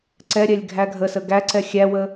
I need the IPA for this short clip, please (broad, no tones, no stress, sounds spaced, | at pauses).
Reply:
ǀ ɛ ɾʲ ɛ lʲ ɡʱ æ ɡʱ ə s ə ɡ æ ǀ ɛ xʲ æ w ə